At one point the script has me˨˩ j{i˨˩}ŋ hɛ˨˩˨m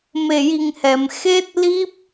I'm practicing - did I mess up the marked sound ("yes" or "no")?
no